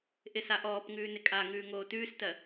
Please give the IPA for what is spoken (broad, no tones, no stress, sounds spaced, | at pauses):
ʔ ɪ s a ʔ ɔː p ŋ ʉː n ɪ kʼ a ŋ ʉː ŋ oː t ʉː s t ɜ